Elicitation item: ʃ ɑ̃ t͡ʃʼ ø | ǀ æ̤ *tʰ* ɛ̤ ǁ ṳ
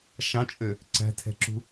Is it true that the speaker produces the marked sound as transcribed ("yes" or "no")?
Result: yes